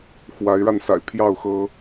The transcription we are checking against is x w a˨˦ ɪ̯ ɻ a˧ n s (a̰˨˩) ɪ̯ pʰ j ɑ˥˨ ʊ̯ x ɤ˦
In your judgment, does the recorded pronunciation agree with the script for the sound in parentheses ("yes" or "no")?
yes